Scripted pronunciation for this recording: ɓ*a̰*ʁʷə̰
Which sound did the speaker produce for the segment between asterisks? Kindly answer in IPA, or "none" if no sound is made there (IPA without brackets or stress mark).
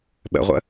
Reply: ə̰